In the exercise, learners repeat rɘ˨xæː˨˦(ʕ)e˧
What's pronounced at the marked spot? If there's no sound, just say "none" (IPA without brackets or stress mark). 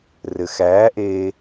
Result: ʔ